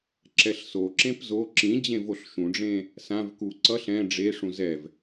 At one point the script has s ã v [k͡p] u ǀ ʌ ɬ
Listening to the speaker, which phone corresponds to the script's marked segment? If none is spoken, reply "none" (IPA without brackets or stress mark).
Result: k